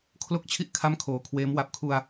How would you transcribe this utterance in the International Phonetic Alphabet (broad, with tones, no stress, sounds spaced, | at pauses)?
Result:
kʰ l o˥˩ k̚ t͡ɕʰ i˥˩ ʔ kʰ a˥˩ m kʰ oː˨˩ kʰ w eː˦˥ m w a˨˩ p̚ kʰ u˧ a̯